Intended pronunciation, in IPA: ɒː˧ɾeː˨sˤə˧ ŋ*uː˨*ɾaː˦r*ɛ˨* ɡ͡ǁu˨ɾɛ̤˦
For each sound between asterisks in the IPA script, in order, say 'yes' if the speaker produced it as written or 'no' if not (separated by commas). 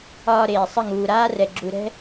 yes, yes